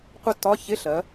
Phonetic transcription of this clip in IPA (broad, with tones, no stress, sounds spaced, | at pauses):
qʷ ə˥˧ tː ɒ˧˥˧ ç ɪ˧˥˧ ɬ ɜ˩˧